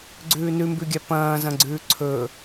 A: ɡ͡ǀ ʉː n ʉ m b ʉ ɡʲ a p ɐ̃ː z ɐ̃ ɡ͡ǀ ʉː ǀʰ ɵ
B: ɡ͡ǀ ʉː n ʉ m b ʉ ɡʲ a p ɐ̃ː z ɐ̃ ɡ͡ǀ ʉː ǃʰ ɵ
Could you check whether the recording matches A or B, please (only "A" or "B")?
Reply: A